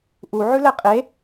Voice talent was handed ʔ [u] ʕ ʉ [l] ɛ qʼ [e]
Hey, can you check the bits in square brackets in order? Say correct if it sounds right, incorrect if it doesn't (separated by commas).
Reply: correct, correct, correct